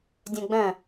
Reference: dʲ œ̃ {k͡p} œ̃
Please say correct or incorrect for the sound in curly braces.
incorrect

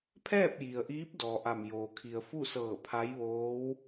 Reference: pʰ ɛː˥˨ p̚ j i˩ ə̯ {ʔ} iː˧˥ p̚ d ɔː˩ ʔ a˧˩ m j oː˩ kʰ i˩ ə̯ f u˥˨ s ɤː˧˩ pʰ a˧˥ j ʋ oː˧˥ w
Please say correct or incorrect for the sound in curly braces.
correct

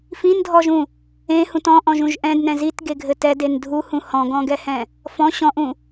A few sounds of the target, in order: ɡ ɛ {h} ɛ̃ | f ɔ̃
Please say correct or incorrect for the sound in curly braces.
correct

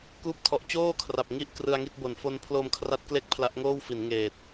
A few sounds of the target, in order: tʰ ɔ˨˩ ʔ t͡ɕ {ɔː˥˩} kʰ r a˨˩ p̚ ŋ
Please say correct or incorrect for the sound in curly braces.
incorrect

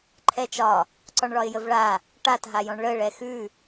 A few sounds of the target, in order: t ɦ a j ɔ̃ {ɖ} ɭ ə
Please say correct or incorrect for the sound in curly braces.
incorrect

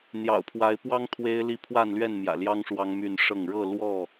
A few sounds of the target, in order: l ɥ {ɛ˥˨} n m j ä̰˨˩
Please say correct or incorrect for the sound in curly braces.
correct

